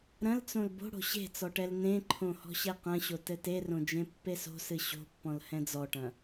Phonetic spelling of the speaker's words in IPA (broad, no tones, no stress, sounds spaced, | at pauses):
ɾ ɐ̃ l t͡s õ l b o̤ ɽ o̤ ɕ e̤ t͡s ɔ ʈ ɛ l n ẽ ǃʰ õ h ɔ̤ ɕ ɛ q ɐ̃ ɕ o t ɘ t e r õ d͡ʒ ẽ pː e s o̤ s ɨ ɕ o̤ pː ɔ̃ l h ɛ̃ d͡z ɔ ʈ ɐ̃